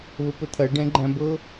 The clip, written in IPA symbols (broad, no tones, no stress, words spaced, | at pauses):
βəpət̪ʰɐ ɖɛ̃ɡ͡ǃæ̃bɤ